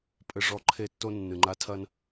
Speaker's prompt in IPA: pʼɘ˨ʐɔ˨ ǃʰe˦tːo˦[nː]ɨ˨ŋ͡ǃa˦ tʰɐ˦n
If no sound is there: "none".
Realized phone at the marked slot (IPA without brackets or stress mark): nː